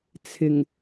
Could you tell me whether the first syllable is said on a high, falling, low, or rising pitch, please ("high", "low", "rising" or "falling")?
low